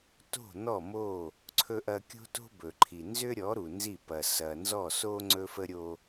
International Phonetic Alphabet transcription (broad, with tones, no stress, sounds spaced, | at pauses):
t o̤˦˨ n̪ ɔ˦˨ m o˦˨ | ǀʰ ɵ˦ ʔ ɐ˦ kʲ o̤˦ t o̤˦ b ɵ˨ ǃʰ i˨ n z ʏ˦ ɾʲ ɔ˨˦ ɾ u˨ n z i˦˨ p ɐ˨ s ɐ˨ n z ɔ˦˨ s o˦ ŋ͡ǀ ɵ˦ f ə˦ ɾʲ o˦